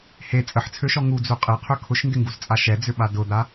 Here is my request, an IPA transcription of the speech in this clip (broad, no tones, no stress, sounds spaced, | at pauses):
h e t͡sʼ ə ħ t͡sʰ ø ʃ ɔ ŋ u d͡z u qʼ e qʰ ø kʰ ʊ ʃ n d ɪ ŋ ɡ u z t͡sʼ a ʃ ɛ d͡z ʏ ɓ a d ʊ d̪ a